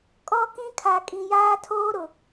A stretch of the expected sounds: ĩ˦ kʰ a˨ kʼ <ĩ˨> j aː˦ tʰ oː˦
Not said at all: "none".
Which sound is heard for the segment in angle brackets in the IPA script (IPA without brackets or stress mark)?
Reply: ĩ˨